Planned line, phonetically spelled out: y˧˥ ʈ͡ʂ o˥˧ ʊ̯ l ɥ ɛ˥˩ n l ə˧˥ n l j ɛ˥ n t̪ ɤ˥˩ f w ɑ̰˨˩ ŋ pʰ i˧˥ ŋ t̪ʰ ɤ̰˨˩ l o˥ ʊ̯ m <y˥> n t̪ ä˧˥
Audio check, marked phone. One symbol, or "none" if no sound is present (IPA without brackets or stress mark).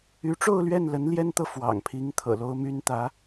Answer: y˥